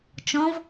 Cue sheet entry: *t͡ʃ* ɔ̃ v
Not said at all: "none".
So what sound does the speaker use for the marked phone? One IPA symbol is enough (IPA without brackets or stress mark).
t͡ʃ